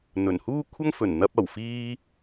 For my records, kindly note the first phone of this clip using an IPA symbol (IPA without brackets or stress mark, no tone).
n̪